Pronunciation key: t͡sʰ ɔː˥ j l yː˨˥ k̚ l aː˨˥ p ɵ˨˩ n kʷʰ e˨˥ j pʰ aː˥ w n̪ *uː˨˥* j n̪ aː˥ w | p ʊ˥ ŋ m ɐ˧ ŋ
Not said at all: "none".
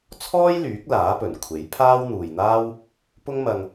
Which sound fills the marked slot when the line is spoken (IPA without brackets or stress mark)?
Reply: uː˨